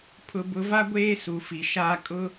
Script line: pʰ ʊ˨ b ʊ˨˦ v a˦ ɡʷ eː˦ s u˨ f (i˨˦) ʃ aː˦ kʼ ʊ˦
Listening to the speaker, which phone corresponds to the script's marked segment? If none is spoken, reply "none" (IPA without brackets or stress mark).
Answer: i˨